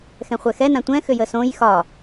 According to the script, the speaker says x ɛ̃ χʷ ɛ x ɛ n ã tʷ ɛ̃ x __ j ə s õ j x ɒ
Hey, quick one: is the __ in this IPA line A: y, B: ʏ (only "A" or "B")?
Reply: B